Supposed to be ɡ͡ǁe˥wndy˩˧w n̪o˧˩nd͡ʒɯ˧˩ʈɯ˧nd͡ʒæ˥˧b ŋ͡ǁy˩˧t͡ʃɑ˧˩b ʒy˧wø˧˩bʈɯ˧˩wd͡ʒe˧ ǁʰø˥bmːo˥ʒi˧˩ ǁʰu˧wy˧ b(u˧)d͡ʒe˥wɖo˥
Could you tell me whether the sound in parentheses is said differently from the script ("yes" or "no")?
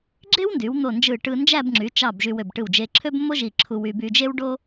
yes